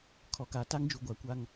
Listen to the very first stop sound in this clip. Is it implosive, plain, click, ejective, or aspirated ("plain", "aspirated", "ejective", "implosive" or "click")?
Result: aspirated